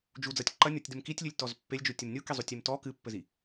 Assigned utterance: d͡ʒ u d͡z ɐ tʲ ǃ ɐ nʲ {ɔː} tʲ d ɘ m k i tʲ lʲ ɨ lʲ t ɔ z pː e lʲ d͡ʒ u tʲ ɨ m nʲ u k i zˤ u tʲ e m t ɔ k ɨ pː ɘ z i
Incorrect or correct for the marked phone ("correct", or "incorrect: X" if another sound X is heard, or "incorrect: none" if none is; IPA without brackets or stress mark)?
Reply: incorrect: ɔ